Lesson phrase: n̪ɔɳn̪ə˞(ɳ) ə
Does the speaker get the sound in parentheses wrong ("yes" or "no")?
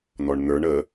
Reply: no